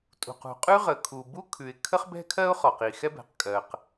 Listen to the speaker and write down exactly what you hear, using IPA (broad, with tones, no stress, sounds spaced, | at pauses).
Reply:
tʼ ṳ˩ q ṳ˩ qʼ ʉ˥ ʁ ə˩ kʰ u˩ b u˥ kʰ ʉ˩ ɪ̯ kʰ ə˥ χ b ɛ̤˥ kʰ ɜ˥ ʊ̯ χ ɔ˩ q i˩ x ɛ˥ b ɛ̤˩ q kʼ ɜ˩ q